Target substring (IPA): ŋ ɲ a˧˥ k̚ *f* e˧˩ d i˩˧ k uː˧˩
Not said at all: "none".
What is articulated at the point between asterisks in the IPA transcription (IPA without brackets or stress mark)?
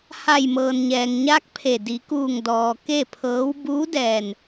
pʰ